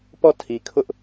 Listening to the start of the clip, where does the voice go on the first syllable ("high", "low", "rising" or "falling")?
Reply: falling